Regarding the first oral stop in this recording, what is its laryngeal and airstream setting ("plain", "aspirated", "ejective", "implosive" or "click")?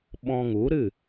implosive